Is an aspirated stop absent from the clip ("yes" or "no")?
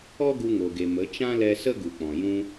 yes